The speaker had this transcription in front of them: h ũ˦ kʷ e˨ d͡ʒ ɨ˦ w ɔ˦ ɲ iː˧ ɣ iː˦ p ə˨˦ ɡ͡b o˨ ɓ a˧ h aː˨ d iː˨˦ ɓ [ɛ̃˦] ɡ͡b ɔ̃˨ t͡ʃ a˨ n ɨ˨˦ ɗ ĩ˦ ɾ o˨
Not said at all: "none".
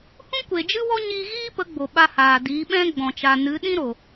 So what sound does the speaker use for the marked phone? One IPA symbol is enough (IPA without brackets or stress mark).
ɛ̃˦